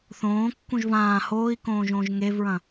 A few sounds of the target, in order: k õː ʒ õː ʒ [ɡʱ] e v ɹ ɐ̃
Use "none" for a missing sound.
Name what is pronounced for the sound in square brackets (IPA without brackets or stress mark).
ŋ